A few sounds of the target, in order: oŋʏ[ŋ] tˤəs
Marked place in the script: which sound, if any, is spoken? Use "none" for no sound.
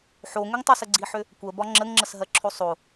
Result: ŋ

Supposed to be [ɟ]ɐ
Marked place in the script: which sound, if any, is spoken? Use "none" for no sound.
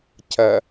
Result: c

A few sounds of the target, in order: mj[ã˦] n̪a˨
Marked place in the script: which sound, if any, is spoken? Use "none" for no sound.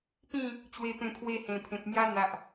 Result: a˦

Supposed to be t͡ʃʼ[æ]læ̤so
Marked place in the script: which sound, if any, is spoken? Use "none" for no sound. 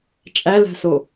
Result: æ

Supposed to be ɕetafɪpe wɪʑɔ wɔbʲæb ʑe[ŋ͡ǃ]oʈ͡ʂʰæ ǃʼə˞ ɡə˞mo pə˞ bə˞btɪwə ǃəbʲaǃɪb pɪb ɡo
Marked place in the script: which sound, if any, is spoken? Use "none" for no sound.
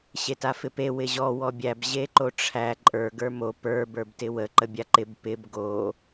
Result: ǃ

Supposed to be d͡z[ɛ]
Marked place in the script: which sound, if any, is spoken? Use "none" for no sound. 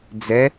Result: ɛ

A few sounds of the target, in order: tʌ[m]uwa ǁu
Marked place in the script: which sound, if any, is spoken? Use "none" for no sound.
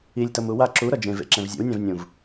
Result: m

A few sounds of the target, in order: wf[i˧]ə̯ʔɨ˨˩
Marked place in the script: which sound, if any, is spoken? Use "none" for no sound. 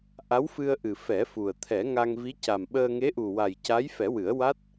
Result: ɨ˧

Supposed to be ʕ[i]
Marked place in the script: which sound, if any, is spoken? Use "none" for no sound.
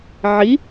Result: i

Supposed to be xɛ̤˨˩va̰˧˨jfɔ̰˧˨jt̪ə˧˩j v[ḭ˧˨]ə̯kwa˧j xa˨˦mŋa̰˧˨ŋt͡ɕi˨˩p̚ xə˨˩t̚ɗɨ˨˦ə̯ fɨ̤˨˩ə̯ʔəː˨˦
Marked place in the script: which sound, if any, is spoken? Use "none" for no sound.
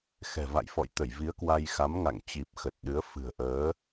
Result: i˨˦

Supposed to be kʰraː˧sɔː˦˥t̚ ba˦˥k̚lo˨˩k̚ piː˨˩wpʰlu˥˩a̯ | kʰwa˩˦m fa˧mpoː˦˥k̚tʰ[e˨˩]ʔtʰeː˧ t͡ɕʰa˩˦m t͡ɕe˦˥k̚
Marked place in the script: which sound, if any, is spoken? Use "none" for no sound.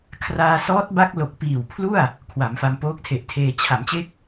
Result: e˨˩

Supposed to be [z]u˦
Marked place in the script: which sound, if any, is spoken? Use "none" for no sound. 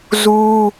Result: z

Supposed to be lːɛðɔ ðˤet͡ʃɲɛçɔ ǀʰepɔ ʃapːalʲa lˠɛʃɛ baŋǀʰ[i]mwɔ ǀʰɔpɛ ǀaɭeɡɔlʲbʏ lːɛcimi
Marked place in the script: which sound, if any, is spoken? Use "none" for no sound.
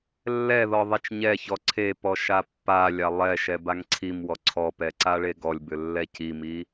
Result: i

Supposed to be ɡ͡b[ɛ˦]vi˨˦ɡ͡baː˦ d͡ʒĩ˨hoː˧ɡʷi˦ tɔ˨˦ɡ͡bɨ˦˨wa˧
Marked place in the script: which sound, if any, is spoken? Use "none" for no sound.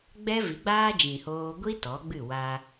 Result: ɛ˦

